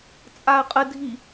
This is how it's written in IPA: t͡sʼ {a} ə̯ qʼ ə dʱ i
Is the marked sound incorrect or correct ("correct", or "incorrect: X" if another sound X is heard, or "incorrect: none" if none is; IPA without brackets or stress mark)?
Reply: correct